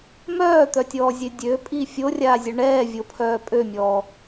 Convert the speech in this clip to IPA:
m œː t̪ œ tʲ ɔː zʲ ø dʲ ø pʼ i fʲ o rʲ aː zʲ œ ɳ ɛː vʲ o pʰ œː pʼ ø mʲ ɔː

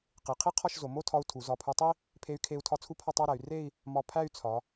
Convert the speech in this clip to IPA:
q i˩˧ qʰ i˥ qʰ ɒ˥˧ ʃ z o˩˧ m o˥˧ tʰ ɒ˧ u̯ tʰ u˩˧ z ɒ˧˩ pʰ u˧ tˤ i˥ | pʰ e˧ y̯ kʰ e˧ u̯ tʰ ɒ˧ t͡sʰ u˥˧ pʰ ɒ˥˧ tˤ æ˥˧ ɾ æ˩˧ y̯ r e˥˧ i̯ | m ɒ˧ pʰ æ˥˧ y̯ t͡sʰ ɒ˩˧

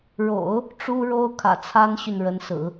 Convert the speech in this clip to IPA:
ɻ o̰˨˩˦ ʊ̯ | ʈ͡ʂ u˥ ɻ o˥ ʊ̯ kʰ ä̰˨˩ t͡sʰ a˥ n ɕ y˨ n ɻ ə˧˥ n s ɹ̩˨˩˦

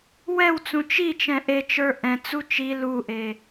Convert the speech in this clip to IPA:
w ɛ w t͡s ũ t͡ʃ i t͡ʃ ɛ̃ ʔ e t͡ʃ ə˞ ʔ ɛ̃ t͡s u t͡ʃ i l u ʔ e

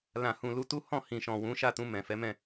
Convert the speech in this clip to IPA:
l ã˨ h ũ˨ l u˧ t u˦ h ɔ̃˦˨ h ĩ˨ ʃ ɔ̃˨ w ũ˨˦ ʃ a˦˨ t ũ˧ m ɛ̃˨ f ɛ˨˦ m ɛ̃˦˨

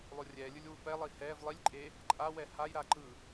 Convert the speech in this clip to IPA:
lˠ o rʲ ɛː lʲ ɯ lʲ w u p ɛ lˠ i h ɛː v lˠ i lʲ ǃʼ e | ǃʼ a w ɛ h a j ɾ a ǃ ɯ

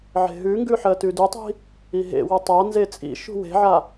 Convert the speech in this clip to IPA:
ʕ e̤ ɦ ʉ ŋ ɡ ʉ ħ ɜ t ʉ d ʉ tˤ i̤ | i ɦ ḛ w ə tˤ a n z e t͡sʼ ḭ ʃ ṳ w e̤ ʕ a

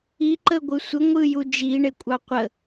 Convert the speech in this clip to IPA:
i ǃ ə ɡʷ ɯ sʷ ɘ ŋʷ ɯ j u d͡ʒ i ɳ e kʷʼ ɑ qʷ ə

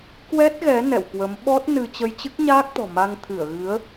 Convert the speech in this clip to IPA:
k w ɛ˦˥ t̚ ɣ ɛ˨˦ n ɛ̰˧˨ w k w ə˨˦ m ɓ ɔ˦˥ t̚ n ɨ˧ t͡ɕ ə˧ j t͡ɕ ɨ˦˥ k̚ ɲ aː˦˥ k̚ t̪ ɔ̤˨˩ m a˧ ŋ t̪ʰ ɨ˧˩ ə̯ ɣ ɨ˨˦ ə̯

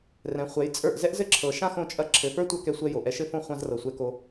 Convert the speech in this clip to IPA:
r ɛ̃˨ χʷ ɛ˨˦ j t͡sʼ ə˞˦˨ ʔ z ɛ˦ ʔ z ɘ˦ ǁʰ ɤ˨ ʃ ã˦ x õ˧ t͡ʃʼ ɐ˧ ǁʰ ɘ˨ f ə˞˦ tʷ ɐ˧ k ɛ˧ sʷ ɛ˧ j o˨ ʔ ɛ˧ ʃ ɘ˦ f õ˦ χʷ ã˧ z r ɤ˨ sʷ ɛ˧ k o˧

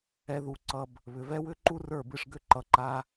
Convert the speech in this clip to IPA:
ɛ˧ ð u˨˦ ǀ ʌ˧ b | β ʏ˨ v ɛ˦ w ʏ˦ ǃ u˦ r ə˞˦˨ b ɨ˧ ʂ ɡ ʏ˦ ǃ ʌ˧ ǃ a˦

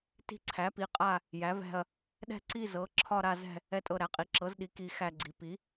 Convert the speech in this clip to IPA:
t i̤˦˨ ǀʰ æ˩˥ p i˩˥ qʼ a˦˨ | j æ˩˥ v ɛ̤˦˨ ɐ̯ | ɗ ɛ̤˦˨ ǀ i˦˨ z ɤ˩˥ ǁʰ ɒ˦˨ ɾ a˦˨ z ɛ̤˦˨ | ɛ˦˨ tʼ ɤ˦˨ ɾ æ˩˥ qʼ i˩˥ ǁ ɤ˩˥ z ɗ i˩˥ k i˦˨ x æ˦˨ ɡ͡ǀ i˩˥ p i˩˥

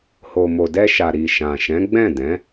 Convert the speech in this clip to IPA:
h o˨ m o˨ d ɛ˧ ʃ a˨ ɾ i˨ ʃ ã˨ ʃ ɛ̃˨˦ ɡ͡b ɛ̃˦˨ d ɛ̃˨˦

